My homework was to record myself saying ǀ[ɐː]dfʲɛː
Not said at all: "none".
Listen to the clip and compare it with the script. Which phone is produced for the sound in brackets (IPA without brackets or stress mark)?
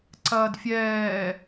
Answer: ɐː